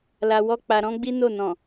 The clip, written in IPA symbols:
l a˧ w ɔ˦ k͡p a˧ ɾ ɔ̃˦ ɡ͡b i˦ n o˦˨ n ɔ̃˨

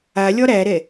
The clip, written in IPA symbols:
a lʲ ɒ ɾ æ ɾ ɛ

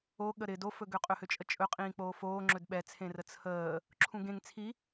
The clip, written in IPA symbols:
o ɠ ə ɾ ɪ d o f ɵ ɡ ø qʼ ɵ h ø t͡ʃʼ ə t͡ʃʼ ɵ qʼ ĩː k͡p oː f oː ŋ͡ǁ ɵ d ɓ ɛ t͡sʰ ẽ r ə t͡sʰ əː | ǁʰ ũ ɡ ẽ ŋ t͡sʰ i

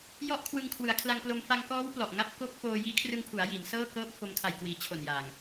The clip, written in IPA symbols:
j ɔ˦˥ ʔ kʰ w ɯ˧ ŋ kʰ w ɯ˩˦ a̯ kʰ l a˧ ŋ k l o˧ m f a˧ ŋ k ɔː˦˥ w p l ɔ˨˩ ʔ ŋ a˥˩ p̚ k o˦˥ k̚ f oː˧ j iː˦˥ kʰ r ɯ˧ ŋ pʰ u˩˦ a̯ j i˩˦ n s ɤː˥˩ k ɤː˥˩ p̚ f o˧ m kʰ a˨˩ j k w iː˩˦ t͡ɕʰ o˨˩ n j aː˨˩ ŋ

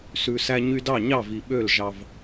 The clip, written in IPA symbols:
s ʉ˨ s æ˧ ɲ y˧ d ɑ˦˨ ɲ ɑ˦˨ v i˨ ɓ ø˦˨ l ʒ ɑ˧ v

